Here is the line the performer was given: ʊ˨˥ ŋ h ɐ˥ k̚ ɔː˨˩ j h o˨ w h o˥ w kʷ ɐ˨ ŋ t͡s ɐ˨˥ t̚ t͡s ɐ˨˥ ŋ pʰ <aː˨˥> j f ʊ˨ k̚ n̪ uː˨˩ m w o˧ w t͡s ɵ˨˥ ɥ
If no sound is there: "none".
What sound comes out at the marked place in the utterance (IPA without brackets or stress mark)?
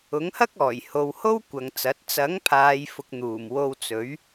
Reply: aː˨